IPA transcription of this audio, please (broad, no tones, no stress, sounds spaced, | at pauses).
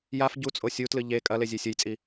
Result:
j a f ɟ u t͡sʼ o sʲ u t l ɨ ʎ e kʼ ɐ l e zʲ e sʲ ɵ j t͡sʼ i